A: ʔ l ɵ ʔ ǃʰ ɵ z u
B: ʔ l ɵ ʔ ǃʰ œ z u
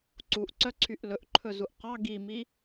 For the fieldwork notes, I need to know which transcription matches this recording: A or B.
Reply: A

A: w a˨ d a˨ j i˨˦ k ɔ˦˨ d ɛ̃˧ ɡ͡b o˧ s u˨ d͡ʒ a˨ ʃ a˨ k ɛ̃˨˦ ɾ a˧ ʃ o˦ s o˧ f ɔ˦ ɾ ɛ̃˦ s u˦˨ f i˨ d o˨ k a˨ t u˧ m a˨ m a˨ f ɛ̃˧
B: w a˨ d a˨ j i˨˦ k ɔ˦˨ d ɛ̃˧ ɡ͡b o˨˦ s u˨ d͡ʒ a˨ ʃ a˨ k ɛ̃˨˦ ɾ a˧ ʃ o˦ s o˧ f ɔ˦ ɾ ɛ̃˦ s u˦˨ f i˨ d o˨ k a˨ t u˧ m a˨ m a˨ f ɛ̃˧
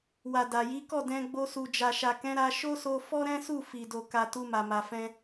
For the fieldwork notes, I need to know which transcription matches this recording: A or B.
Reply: A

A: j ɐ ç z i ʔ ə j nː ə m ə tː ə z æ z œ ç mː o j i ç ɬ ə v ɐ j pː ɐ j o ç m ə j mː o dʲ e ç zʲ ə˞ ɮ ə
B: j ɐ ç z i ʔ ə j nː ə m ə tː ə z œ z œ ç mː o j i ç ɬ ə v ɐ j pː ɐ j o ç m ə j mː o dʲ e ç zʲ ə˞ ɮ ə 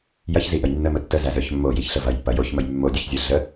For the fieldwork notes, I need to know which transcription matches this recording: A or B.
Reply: A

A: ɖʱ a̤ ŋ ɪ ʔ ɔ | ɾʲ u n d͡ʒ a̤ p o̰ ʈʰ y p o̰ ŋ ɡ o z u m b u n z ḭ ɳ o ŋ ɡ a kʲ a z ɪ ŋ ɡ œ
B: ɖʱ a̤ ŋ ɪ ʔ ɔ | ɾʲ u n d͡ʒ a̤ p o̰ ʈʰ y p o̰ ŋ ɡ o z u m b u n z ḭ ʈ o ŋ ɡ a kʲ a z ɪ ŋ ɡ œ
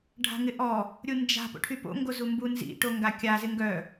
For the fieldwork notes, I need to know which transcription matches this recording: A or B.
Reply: B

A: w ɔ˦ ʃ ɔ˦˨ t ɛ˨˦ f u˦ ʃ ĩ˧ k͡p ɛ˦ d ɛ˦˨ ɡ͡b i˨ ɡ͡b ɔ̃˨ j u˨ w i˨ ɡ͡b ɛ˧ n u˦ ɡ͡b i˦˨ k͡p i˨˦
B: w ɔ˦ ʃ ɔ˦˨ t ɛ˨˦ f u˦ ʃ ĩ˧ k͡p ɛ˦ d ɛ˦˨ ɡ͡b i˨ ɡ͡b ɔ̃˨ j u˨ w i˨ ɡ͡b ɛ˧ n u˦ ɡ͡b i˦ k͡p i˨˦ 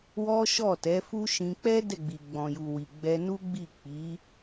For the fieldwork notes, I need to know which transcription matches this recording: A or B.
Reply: A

